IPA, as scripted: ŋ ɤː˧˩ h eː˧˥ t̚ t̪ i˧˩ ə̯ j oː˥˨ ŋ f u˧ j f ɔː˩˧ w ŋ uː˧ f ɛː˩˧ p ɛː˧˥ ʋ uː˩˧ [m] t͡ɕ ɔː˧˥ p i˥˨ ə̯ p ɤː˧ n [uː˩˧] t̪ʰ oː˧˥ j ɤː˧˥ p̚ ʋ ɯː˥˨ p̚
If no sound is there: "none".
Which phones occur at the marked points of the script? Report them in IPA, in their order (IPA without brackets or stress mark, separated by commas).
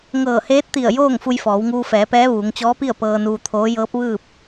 ŋ, uː˧